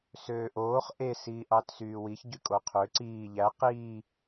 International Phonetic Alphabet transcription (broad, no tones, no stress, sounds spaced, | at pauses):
s øː ʔ oː χ ʔ e s iː ʔ ɑ t s yː w i ç ɟ y kʼ o qʰ ø ǀ iː ʎ æ q iː